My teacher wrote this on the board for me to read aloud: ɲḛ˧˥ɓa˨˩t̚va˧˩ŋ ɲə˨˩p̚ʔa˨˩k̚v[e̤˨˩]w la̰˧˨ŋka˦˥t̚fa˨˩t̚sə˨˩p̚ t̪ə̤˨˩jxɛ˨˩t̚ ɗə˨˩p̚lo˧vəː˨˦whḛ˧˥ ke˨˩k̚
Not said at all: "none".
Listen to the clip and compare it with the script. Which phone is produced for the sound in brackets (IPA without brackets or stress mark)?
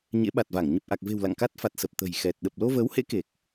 e̤˨˩